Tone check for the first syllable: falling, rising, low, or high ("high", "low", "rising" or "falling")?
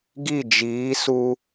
falling